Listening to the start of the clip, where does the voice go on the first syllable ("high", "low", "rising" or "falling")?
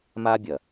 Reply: high